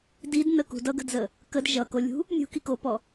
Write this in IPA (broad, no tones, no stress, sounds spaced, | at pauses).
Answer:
d i d n ə k ṳ d ʌ ɡ ə̤ d z ə | k ə d ʒ ʌ k o lʲ ṳ | nʲ ṳ k i k o p ɔ